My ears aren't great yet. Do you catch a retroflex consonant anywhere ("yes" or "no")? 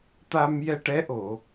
yes